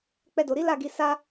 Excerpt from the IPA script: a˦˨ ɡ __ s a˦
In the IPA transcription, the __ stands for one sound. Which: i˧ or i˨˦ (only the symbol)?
i˨˦